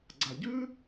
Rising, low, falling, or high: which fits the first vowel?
low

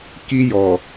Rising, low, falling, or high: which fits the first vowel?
high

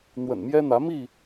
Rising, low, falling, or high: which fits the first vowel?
low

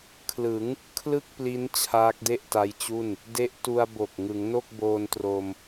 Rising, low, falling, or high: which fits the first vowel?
rising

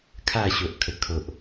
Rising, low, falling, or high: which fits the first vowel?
falling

